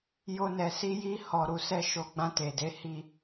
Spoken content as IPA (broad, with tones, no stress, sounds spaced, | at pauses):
j o˦ n ɛ˧ s i˦ j i˦ h ɔ˧ ɾ u˧ s ɛ˦ ʃ o˧ ɡ͡b ã˧ t e˨ d e˨˦ h i˧